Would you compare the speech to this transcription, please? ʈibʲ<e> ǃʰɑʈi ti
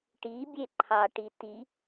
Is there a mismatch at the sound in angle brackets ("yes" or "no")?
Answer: no